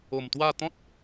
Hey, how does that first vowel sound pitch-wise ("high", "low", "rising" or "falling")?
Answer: low